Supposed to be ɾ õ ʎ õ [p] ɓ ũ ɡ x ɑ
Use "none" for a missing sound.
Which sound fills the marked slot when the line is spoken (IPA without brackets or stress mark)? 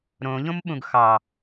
m